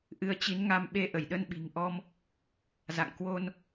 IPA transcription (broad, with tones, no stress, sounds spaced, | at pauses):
ʔ ɨ˨˦ ə̯ t͡ɕ i˨˦ n ŋ a˧ m ɓ e˧ ʔ ə˧˩ j ɗ ə˧ n ɓ i̤˨˩ ŋ ʔ ɔ˧ m | z a̰˧˨ ŋ k w o˧ n